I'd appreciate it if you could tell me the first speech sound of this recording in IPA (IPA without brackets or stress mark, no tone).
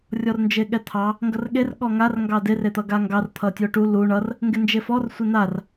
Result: rʲ